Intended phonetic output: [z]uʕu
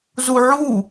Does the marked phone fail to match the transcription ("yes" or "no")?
no